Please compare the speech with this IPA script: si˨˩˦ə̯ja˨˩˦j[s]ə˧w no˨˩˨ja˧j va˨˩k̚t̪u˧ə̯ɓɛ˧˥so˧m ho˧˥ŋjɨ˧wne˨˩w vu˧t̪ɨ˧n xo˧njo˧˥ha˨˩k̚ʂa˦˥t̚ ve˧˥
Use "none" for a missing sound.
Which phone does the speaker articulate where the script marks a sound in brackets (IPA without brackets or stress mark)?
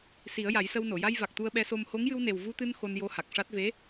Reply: s